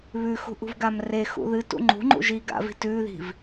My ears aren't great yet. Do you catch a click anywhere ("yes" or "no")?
yes